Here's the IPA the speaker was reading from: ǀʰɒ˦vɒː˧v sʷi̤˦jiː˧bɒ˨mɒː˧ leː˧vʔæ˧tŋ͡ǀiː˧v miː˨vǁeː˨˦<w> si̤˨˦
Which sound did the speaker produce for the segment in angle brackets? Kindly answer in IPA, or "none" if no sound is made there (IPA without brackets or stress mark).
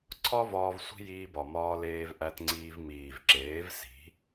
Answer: v